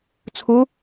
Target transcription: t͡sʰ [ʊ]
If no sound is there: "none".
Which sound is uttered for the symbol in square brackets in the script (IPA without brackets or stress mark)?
ʊ